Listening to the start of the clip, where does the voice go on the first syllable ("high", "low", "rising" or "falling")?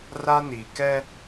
high